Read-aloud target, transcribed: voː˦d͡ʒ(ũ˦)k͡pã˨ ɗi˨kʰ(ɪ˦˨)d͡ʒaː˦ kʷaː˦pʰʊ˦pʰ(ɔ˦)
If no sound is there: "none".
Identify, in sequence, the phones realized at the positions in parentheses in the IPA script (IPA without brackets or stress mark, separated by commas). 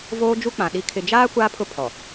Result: u˦, ɪ˨, ɔ˨